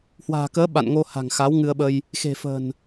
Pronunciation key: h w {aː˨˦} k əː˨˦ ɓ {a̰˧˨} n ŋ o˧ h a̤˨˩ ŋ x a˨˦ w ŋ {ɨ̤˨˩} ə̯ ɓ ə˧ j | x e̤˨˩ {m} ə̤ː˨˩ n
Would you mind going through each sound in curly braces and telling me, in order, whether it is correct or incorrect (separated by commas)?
incorrect, correct, incorrect, incorrect